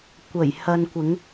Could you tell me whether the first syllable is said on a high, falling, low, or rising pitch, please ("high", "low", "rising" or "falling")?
low